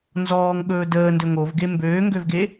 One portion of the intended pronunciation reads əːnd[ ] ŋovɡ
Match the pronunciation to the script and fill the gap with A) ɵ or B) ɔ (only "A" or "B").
A